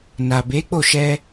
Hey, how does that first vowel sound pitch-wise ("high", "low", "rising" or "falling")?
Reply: low